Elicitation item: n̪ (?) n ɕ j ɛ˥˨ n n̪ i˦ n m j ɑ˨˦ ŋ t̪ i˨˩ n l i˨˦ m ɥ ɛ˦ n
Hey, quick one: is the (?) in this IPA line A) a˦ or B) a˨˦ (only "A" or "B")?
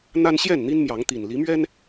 A